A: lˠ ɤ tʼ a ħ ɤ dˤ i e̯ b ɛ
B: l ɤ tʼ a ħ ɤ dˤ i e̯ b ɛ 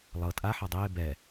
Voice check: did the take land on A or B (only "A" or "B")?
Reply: A